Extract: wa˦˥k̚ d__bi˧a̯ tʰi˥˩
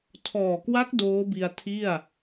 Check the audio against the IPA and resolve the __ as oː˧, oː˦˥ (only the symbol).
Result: oː˦˥